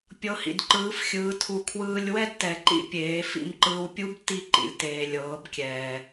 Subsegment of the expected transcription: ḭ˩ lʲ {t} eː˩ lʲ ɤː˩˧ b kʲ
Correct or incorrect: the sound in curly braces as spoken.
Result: correct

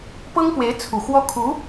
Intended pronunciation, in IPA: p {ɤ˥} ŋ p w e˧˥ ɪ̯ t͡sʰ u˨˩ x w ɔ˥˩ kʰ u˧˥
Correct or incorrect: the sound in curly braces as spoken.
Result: correct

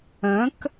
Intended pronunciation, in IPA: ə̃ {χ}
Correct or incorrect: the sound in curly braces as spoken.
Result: incorrect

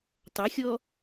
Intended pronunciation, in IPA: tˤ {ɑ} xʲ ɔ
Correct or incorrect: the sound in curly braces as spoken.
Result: incorrect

